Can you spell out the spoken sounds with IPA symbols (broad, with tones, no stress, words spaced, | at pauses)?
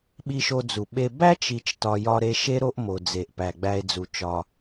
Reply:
ɓi˧ʃo˧d͡zu˩ɓe˧ bæ˥t͡ʃ i˧t͡ʃtɒ˧ jɒ˧ɾe˧ʃe˥ ɾo˥ʔmo˩d͡ze˩ʔ pæ˩ɡ͡bæ˧e̯d͡zu˩ t͡ʃɒ˩